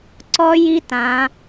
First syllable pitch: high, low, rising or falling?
high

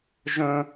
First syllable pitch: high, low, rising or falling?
high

